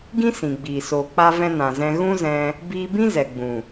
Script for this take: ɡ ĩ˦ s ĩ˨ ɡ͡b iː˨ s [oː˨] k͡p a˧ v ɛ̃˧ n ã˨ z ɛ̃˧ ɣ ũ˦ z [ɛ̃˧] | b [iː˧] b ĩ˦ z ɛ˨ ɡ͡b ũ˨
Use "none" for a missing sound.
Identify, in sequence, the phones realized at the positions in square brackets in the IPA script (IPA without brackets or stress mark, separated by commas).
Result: oː˨, ɛ̃˧, iː˧